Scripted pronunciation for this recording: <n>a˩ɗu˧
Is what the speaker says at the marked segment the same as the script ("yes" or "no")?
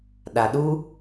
no